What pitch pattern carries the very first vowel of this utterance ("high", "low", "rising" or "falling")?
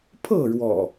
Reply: falling